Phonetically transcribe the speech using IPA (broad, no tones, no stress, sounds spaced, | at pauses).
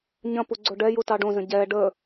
ɲ ɐ̃ p u ɡ͡ǀ o ɖ ɛ j u t ɑ ɖ õ z ə̃ ɟ ɛ ɖ ə